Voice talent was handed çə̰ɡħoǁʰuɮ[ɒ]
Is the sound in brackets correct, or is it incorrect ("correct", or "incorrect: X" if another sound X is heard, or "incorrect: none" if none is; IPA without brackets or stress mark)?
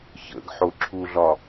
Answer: correct